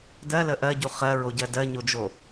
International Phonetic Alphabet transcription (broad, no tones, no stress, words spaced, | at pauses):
dɜlə ʔɜɟu χɜɹoɟɜ dɜɲod͡ʒo